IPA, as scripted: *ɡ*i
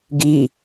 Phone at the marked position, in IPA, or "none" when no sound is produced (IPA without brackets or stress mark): ɡ